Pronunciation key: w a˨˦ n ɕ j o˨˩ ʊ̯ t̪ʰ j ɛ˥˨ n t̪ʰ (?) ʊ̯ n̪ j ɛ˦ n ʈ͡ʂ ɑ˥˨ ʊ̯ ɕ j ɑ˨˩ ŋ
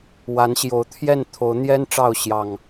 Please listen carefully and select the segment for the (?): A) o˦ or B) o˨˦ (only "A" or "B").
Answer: B